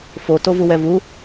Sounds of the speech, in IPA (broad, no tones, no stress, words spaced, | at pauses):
fo tovuwɛvu